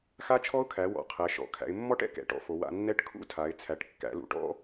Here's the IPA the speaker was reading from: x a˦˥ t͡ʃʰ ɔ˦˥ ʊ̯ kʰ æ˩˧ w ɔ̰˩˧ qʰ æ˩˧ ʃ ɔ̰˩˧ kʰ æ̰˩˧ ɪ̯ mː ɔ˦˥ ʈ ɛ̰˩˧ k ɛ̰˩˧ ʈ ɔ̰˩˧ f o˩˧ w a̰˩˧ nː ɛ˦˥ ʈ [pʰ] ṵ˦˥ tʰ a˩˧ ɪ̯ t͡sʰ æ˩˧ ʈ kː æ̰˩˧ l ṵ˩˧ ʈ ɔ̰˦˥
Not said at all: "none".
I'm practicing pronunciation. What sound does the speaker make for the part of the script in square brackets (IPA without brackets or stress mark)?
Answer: kʰ